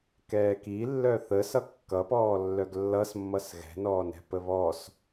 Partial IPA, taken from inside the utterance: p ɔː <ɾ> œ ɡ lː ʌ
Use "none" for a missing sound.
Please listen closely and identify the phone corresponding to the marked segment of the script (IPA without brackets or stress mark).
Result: lː